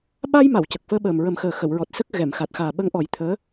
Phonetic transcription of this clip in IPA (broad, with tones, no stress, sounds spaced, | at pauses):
ɓ a˧ j m a˨˩˨ w c ə˨˩ k̚ f əː˧ ɓ əː˨˩ m ɹ ə˨˩˦ m x əː˨˩ x ə˨˩˨ w ɹ ɔ˨˩ t̚ s ə˦˥ k̚ ɣ ɛ˨˩˨ m x a˨˩ t̚ x aː˨˩ ɓ ə˧˥ ŋ ʔ ɔ˨˩˦ j t̪ʰ əː˧˥